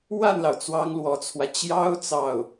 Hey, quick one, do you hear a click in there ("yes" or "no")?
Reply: no